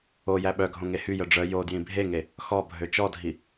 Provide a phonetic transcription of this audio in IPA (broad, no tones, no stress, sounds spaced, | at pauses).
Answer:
o j æ ɓ œ ɡʱ õ ŋ e h y j œ ɖ͡ʐ œ j o d j ĩ bʱ e ŋ e | x ɔ bʱ ø t͡ʃ ɔ dʱ i